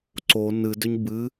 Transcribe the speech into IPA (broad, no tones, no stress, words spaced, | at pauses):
ǀo nɨdʏɲ bɨ